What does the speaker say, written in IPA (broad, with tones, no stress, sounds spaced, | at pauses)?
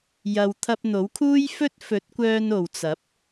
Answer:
j ɐ˧ w t̪ʰ ɐ˧ p̚ n̪ o˨˥ w kʰ uː˥ j f ɵ˥ t̚ f ɵ˨˥ t̚ kʷ œː˧ n o˨ w t͡s ɐ˨˥ p̚